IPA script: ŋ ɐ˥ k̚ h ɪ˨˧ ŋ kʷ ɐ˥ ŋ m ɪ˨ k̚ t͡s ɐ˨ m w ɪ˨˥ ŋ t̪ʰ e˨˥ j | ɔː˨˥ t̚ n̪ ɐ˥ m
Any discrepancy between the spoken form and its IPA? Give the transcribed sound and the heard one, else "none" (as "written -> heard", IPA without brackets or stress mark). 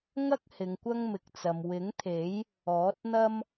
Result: none